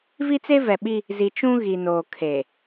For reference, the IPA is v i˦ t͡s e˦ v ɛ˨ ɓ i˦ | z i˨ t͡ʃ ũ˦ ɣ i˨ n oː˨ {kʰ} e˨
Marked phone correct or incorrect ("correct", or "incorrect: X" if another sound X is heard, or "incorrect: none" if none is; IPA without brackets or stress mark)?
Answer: correct